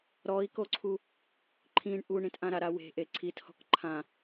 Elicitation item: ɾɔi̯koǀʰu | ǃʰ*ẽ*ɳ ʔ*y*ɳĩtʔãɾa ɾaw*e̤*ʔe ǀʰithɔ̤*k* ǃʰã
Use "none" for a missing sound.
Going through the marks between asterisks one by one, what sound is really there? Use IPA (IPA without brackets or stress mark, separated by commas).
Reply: ĩ, u, e̤, k